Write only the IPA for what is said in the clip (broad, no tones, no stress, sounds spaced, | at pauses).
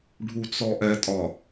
ɖʱ u t͡s ɔ ʔ ɛ tʼ ɒ